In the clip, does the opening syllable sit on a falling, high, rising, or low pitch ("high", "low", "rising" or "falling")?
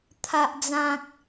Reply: low